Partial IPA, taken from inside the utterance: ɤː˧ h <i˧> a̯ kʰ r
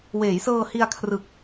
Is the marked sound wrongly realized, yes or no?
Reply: no